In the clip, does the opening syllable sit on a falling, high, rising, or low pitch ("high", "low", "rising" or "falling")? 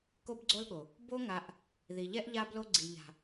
high